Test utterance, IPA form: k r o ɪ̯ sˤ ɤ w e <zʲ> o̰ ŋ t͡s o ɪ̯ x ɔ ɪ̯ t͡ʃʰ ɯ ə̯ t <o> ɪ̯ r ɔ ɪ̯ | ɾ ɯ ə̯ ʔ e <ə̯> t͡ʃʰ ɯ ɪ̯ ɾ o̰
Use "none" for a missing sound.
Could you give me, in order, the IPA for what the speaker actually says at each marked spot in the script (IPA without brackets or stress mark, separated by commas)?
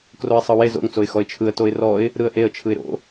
z, o, ə̯